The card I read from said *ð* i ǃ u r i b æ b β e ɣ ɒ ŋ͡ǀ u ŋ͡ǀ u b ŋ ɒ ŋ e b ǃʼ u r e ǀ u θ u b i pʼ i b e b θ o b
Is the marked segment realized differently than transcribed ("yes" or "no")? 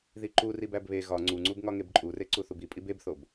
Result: no